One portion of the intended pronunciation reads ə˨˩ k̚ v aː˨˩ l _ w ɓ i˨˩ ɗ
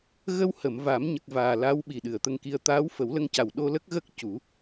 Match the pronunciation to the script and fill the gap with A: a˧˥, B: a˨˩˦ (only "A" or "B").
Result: A